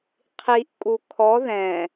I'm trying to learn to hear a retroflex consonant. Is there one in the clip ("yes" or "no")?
no